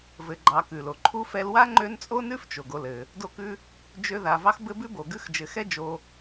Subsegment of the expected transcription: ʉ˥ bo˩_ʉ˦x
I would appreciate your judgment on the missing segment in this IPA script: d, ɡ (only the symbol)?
ɡ